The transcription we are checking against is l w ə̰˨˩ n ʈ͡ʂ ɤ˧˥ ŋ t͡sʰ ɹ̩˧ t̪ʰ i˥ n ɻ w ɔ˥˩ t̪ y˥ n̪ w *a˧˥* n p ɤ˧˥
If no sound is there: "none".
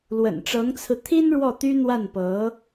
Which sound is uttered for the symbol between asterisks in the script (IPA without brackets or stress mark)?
a˥˩